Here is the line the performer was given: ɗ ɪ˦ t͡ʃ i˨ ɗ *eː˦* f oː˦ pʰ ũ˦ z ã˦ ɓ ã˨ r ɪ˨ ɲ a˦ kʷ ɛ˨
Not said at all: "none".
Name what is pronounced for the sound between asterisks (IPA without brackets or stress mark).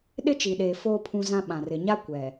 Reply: eː˨